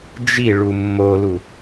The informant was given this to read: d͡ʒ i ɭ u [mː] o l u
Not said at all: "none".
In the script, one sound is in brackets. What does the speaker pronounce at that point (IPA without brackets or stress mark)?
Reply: mː